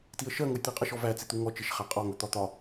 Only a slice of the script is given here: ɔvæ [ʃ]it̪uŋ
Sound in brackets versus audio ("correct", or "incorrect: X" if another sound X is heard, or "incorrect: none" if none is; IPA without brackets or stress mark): incorrect: t͡s